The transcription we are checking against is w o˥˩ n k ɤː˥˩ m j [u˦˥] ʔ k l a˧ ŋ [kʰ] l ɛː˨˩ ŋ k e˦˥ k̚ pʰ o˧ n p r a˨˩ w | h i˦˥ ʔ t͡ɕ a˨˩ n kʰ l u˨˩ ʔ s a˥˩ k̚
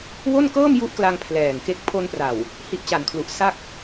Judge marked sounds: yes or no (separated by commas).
yes, no